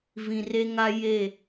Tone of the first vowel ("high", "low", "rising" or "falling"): low